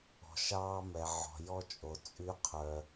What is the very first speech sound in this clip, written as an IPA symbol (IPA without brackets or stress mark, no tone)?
ɔ̤